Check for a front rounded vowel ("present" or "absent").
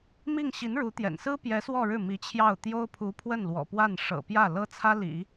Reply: absent